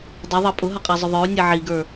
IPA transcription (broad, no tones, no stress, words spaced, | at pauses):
dˤʌðˤɑ pʼʊɦʌqʼæzˤʊ ðˤə˞u̯nʲɛ ʕiɡə˞